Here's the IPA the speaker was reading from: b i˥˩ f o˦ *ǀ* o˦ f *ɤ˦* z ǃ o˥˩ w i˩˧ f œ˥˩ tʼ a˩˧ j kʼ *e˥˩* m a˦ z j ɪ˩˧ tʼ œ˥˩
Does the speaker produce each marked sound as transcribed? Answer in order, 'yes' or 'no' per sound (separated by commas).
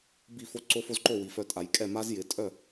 yes, no, no